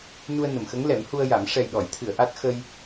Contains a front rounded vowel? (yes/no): no